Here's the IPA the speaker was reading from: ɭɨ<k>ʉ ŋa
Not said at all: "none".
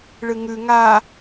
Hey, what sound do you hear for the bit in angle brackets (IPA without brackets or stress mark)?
ŋ